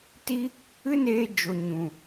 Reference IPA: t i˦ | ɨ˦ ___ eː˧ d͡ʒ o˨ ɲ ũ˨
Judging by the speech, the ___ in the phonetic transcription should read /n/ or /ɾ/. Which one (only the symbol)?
n